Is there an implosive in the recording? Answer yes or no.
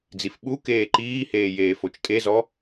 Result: yes